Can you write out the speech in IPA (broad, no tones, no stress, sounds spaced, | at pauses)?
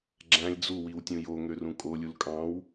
ɡ͡ǁ æ̃ lʲ d͡z u w i w tʲ ũ j o ŋ ø r ũ kʼ o lʲ u l kʼ ɑ̃ w